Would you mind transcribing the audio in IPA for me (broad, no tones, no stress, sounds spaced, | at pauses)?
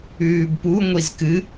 ʉː b p u ŋʷ i z k ɨ